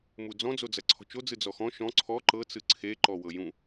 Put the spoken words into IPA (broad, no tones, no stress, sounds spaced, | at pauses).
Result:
m u d͡z ɔ̃ d͡z o d͡z ɐ ǀʰ ɔ̤ t͡ʃ o d͡z ɯ d͡z ɔ x ɔ̃ ʃ ɔ̃ ǀʰ ɔ ǃ ɤ t͡s ɯ ǀʰ e ǃ ɔ w ɤ j ũ